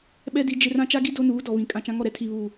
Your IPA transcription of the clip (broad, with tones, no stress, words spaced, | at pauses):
ɓɛ˦di˨˦ d͡ʒɪ˦r ã˦t͡ʃa˦ɡi˦ do˦nuː˨˦dɔ˨βĩ˨ kʼã˨t͡ʃã˨˦ŋɔ˨ɾɛ˦ tʰi˨βuː˨